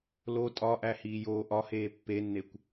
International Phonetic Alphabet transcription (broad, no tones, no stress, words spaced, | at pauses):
lo tʼɒʔæ hiːjoːʔɒheː pːenːekʷ